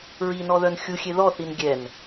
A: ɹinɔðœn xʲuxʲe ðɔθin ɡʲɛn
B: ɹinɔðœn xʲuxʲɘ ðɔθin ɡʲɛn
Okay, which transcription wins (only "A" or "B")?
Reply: A